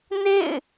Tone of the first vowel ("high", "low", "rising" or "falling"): falling